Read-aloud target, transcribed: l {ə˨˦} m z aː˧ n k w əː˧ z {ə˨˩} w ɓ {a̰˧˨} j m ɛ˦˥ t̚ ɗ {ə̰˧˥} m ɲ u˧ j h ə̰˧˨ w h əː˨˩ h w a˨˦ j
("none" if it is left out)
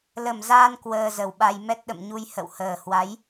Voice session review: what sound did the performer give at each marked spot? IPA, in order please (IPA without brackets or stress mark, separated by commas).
ə˨˩, ə˨˩, a˧, ə̰˧˨